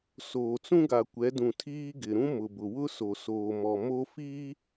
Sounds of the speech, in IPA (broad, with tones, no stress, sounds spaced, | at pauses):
s oː˨ t͡s ũ˦ ɡ a˨ kʷ ɛ˨˦ d ũ˨ tʰ iː˦ ɡ ɪ˨ ɾ ũ˦ m ʊ˨ b ʊ˨ w ʊ˦ s o˨ s oː˨ m ɔ˨ m o˦ f iː˦